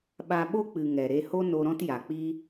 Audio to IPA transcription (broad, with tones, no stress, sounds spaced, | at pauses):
ɓ a˧ ɓ o˦ k͡p ɨ˨ ŋ ɛ˨ ɾ e˧ h o˦ n o˧ ɾ ɔ̃˦ t j a˨ k͡p i˦